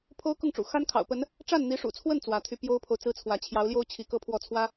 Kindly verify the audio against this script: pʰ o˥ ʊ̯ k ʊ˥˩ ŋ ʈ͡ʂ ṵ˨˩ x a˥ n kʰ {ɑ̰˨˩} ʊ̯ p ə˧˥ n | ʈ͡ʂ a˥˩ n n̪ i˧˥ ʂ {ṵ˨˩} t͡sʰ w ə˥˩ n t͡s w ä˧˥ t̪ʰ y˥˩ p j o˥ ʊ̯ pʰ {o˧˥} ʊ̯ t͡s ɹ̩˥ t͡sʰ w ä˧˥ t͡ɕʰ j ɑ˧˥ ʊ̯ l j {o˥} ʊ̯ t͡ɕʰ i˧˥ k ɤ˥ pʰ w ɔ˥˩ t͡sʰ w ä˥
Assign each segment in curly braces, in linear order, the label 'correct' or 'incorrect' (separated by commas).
correct, correct, incorrect, correct